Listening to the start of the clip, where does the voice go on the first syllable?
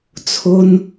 high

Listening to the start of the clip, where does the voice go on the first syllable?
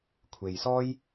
low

